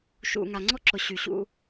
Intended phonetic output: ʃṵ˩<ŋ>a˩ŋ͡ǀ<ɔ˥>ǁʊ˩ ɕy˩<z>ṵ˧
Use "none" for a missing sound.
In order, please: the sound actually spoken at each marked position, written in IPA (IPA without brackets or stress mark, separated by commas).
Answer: ŋ, ɔ˥, ɕ